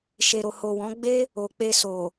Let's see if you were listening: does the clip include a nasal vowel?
yes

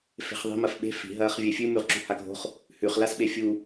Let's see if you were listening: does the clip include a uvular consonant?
yes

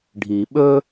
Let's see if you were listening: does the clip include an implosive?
yes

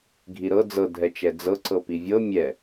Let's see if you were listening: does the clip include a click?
yes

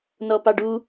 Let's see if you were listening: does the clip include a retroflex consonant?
yes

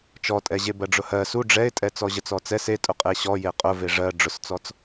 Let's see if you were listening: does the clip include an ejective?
yes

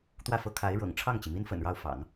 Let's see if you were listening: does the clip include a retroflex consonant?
yes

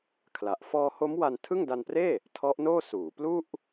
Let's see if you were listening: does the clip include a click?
no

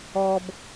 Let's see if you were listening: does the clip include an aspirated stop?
no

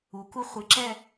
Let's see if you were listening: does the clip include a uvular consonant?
yes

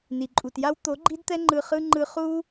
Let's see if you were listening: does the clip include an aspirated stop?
no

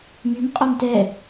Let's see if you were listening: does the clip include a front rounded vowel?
yes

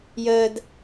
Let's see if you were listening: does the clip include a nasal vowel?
no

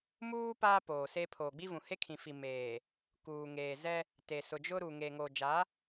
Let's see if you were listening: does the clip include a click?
no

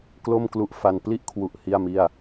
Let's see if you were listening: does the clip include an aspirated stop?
yes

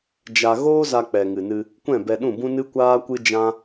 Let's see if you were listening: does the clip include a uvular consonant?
no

